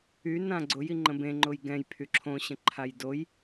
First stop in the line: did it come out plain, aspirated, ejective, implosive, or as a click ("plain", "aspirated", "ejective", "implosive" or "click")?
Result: click